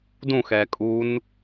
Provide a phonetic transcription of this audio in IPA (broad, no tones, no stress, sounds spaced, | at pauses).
d ũ x ɛ kʼ u n